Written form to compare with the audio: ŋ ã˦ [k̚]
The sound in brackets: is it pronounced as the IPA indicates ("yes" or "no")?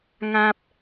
no